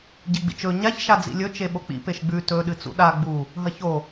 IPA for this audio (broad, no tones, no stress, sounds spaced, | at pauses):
ɟ i ɡ͡b ḭ t͡ʃ ɵ ɲ a ç ʃ a d͡z ḭ lʲ ɵ t͡ʃ e ɓ o k͡p ḭ p e ʃ ɡ͡b ʉ t ɵ ɗ ɨ t͡s ṵ ɗ a ɡ͡b u | ɦ ɐ ç o